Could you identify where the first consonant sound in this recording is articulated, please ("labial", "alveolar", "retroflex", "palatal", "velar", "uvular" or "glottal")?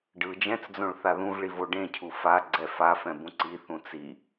retroflex